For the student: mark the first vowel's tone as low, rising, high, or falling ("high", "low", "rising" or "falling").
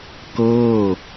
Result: falling